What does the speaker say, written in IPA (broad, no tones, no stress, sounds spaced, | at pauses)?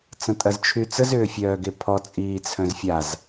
t͡s ɐ̃ tʼ ɐ z t͡ʃʰ y t͡s ə z ʏː fʲ œː ɡ e pʰ ɔ t͡sʼ iː t͡sʰ œ̃ z fʲ a z